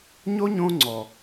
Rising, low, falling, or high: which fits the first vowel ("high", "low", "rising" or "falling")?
high